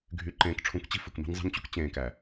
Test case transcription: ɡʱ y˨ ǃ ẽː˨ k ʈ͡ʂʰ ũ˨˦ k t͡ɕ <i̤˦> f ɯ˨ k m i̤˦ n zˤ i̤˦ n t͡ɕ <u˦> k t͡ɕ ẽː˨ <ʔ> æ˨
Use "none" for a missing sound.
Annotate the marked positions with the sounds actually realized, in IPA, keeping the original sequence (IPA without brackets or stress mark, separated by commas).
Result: i̤˦, u˦, k